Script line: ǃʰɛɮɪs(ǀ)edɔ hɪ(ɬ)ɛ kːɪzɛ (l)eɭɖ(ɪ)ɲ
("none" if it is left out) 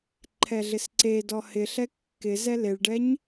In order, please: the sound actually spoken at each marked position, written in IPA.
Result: ǀ, ɬ, l, ɛ

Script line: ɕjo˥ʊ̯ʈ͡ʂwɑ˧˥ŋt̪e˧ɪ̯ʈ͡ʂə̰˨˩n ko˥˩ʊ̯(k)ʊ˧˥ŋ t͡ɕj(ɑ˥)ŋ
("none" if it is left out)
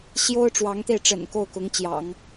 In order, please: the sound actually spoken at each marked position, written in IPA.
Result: k, ɑ̰˨˩˦

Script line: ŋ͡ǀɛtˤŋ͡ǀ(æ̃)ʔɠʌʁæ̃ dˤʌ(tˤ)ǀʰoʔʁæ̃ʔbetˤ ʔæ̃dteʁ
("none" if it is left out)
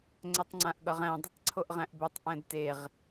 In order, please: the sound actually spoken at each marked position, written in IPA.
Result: ã, tˤ

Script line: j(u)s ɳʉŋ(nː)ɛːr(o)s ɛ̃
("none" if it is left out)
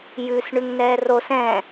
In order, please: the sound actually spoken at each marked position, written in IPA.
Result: ʉ, n, o

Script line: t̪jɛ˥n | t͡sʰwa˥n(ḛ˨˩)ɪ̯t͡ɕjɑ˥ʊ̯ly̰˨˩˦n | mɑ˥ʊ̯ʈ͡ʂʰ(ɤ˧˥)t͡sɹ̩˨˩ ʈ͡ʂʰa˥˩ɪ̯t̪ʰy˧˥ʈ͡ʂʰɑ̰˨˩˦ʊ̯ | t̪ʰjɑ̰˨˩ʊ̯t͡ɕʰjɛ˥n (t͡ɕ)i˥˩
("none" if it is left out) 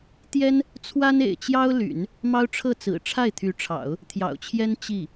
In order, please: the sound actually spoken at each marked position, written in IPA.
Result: ḛ˨˩, ɤ˥˩, t͡ɕ

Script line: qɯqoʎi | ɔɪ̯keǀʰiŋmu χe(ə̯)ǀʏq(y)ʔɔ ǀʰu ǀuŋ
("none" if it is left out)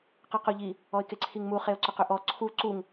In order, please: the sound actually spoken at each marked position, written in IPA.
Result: ʊ̯, ʏ

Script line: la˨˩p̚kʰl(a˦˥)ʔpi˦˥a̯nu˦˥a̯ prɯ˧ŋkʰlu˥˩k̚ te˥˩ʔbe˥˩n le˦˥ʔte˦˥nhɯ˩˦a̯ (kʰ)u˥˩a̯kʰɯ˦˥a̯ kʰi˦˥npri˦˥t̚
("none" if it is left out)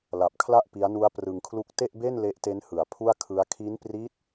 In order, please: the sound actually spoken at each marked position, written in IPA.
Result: a˥˩, pʰ

